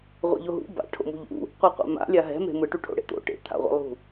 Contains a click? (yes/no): no